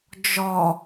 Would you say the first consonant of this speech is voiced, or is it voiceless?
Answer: voiced